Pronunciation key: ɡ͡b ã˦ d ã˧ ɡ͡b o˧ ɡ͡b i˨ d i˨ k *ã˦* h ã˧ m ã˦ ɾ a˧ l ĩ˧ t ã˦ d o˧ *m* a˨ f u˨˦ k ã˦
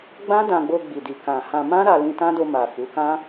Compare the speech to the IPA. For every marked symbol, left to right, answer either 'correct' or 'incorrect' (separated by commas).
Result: incorrect, correct